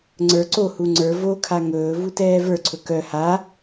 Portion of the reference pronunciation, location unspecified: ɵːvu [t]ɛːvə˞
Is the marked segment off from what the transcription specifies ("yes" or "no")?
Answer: no